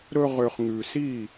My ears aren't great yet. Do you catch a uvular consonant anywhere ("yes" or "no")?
yes